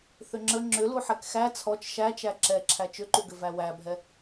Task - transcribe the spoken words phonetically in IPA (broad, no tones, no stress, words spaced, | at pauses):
θʏŋ͡ǁə ŋ͡ǁʏ luħɛkxæ t͡sʰɔt͡ʃ ʃæt͡ʃæ ǁɛǁʰæ t͡ʃʏǃuɡʏvæ wæbʱɛ